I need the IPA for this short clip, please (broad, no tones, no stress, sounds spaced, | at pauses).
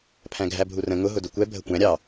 pʰ æ̃ ɡʱ æ bʱ u r ə̃ ŋ ʊ ɦ ʊ d ʊ kʷ ɛ bʱ ə kʷ æ̃ ɾʲ ɑ